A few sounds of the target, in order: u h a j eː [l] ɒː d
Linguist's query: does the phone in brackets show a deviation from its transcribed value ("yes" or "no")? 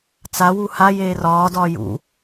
yes